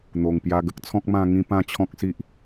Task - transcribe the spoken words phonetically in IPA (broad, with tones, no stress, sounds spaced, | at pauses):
n̪ o˨˩ ŋ p j a˧ ɡ ə˦ k̚ t͡sʰ ɔ̃˦ k̚ m ã˧ ŋ ĩ˧ p ã˥˧ t͡ɕʰ ɔ̃˦ k̚ s i˦ ʔ